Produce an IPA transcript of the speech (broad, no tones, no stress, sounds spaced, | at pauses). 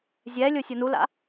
zʲ ɛ lʲ o sʲ o n u l a̰